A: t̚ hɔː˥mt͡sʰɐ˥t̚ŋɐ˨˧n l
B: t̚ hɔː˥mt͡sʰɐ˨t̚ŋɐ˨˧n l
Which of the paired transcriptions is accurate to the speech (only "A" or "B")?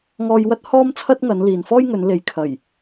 A